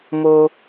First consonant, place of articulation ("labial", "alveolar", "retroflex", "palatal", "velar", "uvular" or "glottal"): labial